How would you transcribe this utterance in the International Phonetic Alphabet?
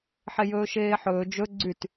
ħ e j ɵː ʃ eː ħ ɵː d͡ʒ ɵ ɡ͡ǀ y t

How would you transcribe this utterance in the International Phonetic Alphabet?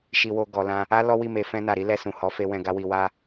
ʃ i˨ w o˨ ɡ ɔ˨ l ã˧ | a˦ l ɔ˦ w i˦˨ m e˧ f ɛ̃˧ n a˨ ɾ i˨˦ l ɛ˧ s ũ˨ h ɔ˨˦ f e˧ w ɛ̃˧ ɡ a˦ w i˧ w a˦

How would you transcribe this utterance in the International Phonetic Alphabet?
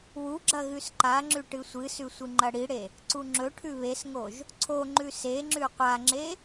w u ɡ͡ǁ ɐ ɣ ʉ s ǃ a ŋ͡ǁ ʉ ʈ ɨ sʷ ɨ s ʉ sʷ ɨ ŋ͡ǃ ɐ ɽ i ɽ e | ǀ u ŋ͡ǁ ɵ ʈʰ ʉ β e s ŋ o ʒ | ǀʰ o ŋ͡ǃ ʉ s e ŋ͡ǁ ʉ qʷ a ŋ͡ǁ e

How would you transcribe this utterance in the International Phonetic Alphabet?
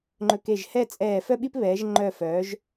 ŋ͡ǃ ɵ˧˩ k e˧˩ ʒ h ɛ˥˧ t͡sʼ ɛː˧˩ f œ˥ ɓ i˥ p β ɛː˩˧ ʒ ŋ͡ǃ œ˧˩ f œː˩˧ ʒ

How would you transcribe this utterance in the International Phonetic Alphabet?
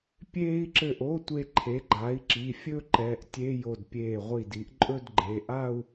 pʲ eː˧ i̯ ǁ ɘ˧˩ ʔ o˧˥˧ tʷ e˧ ǃʰ e˩˥ ɡ͡ǃ a˩˥ i̯ ǁ i˩˧˩ fʲ ɵ˥˧ ǃ ɛ˩˧˩ ʔ tʲ e˧˥˧ j o˧˩ d pʲ eː˧˩ ʁʷ i˧˩ d i˩˥ ʔ ǃʼ ɵ˥˧ d ɡ͡ǃ e˩˧˩ ʔ a˥˧ u̯

